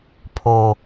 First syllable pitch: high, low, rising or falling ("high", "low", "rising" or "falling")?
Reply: low